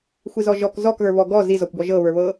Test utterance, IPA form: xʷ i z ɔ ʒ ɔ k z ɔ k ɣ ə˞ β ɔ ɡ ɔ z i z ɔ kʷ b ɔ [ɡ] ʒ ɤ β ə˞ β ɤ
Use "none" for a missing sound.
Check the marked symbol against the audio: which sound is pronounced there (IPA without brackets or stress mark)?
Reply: none